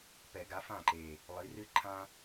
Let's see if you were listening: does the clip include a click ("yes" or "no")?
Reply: yes